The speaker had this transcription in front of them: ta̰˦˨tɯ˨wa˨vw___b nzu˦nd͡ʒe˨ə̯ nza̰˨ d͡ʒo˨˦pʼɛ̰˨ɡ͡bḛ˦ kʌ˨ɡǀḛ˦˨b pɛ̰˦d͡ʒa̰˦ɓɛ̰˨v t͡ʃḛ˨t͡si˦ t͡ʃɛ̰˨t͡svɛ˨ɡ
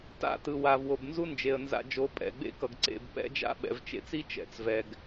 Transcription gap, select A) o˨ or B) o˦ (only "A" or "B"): A